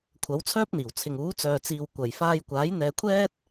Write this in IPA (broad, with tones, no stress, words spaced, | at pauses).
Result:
kʷʰɐ˨˥wt͡sʰœː˥p̚n̪iː˨˩w t͡sʰɪ˨ŋuː˨˥ t͡sœː˨t͡siː˨w kʷɐ˨j faː˧jkʷaː˨˥j n̪ɛː˧kʷʰɛː˥t̚